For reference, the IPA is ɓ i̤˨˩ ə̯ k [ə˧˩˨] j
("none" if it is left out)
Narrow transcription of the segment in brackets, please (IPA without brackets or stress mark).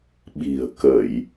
ə˧˩˨